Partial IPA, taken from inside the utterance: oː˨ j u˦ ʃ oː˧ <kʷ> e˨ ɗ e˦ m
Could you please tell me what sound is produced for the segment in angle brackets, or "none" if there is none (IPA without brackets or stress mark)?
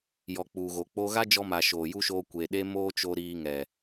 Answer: kʷ